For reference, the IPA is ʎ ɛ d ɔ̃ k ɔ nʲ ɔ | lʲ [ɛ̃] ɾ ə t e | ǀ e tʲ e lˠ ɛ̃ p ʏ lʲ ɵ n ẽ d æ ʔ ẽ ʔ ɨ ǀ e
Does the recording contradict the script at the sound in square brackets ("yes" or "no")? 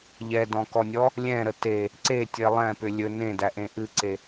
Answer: no